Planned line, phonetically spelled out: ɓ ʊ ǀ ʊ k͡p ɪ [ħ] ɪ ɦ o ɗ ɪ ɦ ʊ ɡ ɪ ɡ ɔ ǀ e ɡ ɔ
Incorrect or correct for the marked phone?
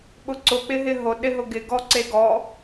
incorrect: ɦ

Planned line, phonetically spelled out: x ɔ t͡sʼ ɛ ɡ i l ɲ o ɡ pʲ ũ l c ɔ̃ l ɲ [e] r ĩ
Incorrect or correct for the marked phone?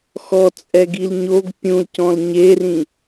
correct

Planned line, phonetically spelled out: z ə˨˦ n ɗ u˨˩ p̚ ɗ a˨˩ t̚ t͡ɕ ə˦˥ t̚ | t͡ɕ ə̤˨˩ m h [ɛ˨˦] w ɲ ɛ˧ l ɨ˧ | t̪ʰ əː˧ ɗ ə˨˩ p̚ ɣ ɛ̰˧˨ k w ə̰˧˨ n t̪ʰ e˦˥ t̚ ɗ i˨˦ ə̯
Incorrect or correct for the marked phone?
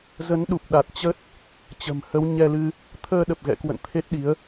incorrect: ə˨˦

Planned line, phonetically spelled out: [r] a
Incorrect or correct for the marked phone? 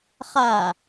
incorrect: χ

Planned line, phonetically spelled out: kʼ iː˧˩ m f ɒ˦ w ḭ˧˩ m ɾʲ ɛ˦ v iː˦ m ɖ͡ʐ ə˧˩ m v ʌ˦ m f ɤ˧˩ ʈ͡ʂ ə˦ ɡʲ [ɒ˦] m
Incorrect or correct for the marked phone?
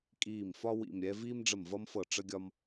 correct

